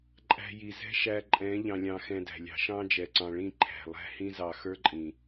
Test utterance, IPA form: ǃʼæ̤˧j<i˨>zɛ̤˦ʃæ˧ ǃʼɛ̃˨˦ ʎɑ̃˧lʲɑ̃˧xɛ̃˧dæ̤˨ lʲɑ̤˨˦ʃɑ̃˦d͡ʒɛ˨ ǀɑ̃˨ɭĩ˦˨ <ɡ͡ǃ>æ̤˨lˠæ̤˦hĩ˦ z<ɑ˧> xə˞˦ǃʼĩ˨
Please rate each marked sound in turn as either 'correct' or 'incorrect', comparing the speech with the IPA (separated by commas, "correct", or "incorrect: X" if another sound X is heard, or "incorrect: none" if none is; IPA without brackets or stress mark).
correct, incorrect: ǃʰ, correct